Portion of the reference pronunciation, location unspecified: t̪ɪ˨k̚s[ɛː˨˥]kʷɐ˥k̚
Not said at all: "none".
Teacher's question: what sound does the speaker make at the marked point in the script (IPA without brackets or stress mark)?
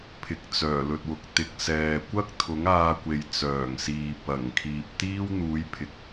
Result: ɛː˨